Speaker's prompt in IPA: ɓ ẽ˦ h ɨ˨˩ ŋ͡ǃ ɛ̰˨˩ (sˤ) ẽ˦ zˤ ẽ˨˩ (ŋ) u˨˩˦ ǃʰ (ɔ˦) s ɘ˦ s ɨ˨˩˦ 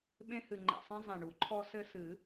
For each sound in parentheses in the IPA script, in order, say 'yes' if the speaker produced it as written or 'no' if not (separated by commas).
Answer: yes, no, yes